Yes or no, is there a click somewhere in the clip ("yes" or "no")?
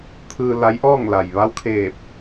no